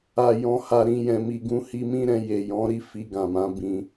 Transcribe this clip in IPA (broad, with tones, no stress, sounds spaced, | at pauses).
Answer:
a˨ j ɔ̃˨ h a˨ ɾ ĩ˨ j ɛ̃˨ m i˨ ɡ ũ˧ h i˧ m ĩ˦ ɾ ɛ̃˧ j e˨ j ɔ̃˨˦ ɾ i˦ f i˧ ɡ ã˨ m ã˨˦ b ĩ˧